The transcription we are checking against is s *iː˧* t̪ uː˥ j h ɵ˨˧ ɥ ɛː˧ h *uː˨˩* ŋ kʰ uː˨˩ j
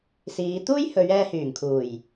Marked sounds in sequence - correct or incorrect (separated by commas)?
incorrect, incorrect